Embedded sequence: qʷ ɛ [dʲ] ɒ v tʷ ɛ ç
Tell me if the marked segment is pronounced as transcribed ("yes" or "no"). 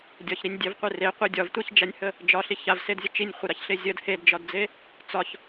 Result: yes